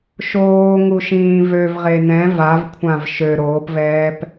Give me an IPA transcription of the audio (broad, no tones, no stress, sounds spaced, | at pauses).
ʃ oː ŋ u ʃ ĩː v ø v ʁ e n ɛ̃ v a v kʷʰ ã v ʃ ø ɾ oː p v ɛː p